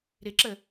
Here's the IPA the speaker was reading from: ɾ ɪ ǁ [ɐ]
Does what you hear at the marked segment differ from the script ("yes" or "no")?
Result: yes